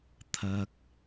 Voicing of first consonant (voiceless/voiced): voiceless